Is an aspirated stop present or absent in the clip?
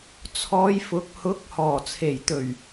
present